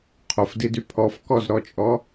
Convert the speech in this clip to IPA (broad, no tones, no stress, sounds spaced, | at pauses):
qʰ o f d i d y pʰ ɔ f k ɔ z ɾ ɔ t͡ʃʼ ɔ